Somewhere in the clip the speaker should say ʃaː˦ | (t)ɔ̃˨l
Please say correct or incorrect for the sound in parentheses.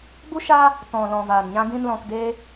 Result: correct